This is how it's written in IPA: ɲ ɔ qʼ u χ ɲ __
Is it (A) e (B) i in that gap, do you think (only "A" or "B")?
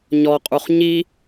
B